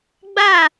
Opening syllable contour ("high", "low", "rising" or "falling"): falling